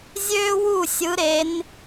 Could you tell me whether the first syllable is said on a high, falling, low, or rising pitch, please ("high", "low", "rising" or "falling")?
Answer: high